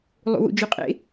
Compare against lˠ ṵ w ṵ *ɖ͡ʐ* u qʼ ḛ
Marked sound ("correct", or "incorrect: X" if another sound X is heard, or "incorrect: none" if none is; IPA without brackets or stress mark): incorrect: d͡ʒ